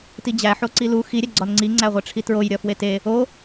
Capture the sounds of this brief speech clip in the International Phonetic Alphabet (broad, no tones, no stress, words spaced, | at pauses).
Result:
tid͡ʑæ ħoǀilu xi ɾʲæɡ͡ǀɒnŋ͡ǀi ŋ͡ǀæʁʷeʈ͡ʂʰitɹoj ɾʲɒfwete | o